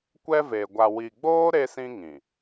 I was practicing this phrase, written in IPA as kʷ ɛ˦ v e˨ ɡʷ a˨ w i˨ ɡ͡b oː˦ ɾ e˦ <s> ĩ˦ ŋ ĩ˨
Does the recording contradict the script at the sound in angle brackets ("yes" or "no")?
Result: no